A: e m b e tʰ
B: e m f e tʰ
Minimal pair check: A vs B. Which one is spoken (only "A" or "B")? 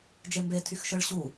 A